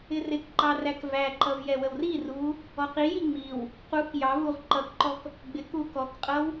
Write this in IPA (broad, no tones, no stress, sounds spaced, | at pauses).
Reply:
ɪ r ɪ k ǃ ɑ r æ k v æ ǃ ʌ v j ɛ w ə w r i r u | ɔ q i j i ŋ͡m i w | q u k j ɑ v u ʁ ǃ ʌ k ǃ ɔ k | ɡ͡b ɪ k u k ɔ k qʼ ʌ w